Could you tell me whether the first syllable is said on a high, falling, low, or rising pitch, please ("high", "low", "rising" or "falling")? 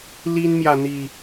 high